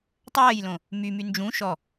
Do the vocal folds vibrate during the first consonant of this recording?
no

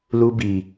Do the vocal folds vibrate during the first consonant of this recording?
yes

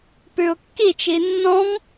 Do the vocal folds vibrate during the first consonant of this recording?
no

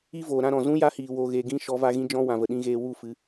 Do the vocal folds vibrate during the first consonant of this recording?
yes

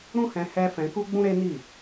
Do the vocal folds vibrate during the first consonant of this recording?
yes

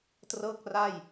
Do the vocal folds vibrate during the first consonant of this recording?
no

